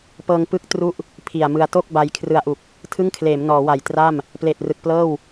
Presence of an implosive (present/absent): absent